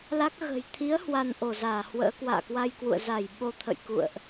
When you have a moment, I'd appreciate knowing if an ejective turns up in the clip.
no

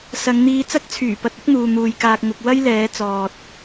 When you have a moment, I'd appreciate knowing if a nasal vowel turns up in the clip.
no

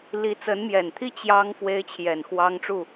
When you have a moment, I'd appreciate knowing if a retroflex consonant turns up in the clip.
yes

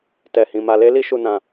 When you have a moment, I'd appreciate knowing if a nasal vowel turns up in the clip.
yes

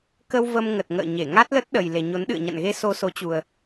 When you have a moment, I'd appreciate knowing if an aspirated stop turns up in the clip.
no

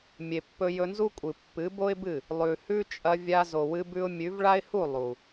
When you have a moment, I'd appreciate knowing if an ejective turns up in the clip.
yes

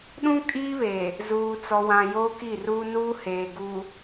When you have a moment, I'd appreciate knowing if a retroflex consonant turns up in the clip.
no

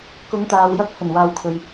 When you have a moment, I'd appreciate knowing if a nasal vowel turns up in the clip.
no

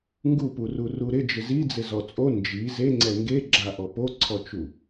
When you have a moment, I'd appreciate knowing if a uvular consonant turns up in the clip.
no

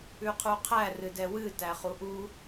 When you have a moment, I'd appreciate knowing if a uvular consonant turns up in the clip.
yes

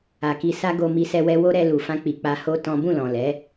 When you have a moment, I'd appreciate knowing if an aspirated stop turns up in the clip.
no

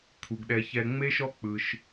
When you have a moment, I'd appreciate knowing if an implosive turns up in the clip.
yes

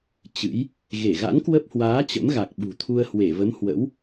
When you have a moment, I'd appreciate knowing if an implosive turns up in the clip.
yes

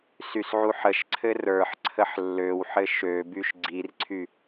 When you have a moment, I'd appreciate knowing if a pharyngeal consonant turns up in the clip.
yes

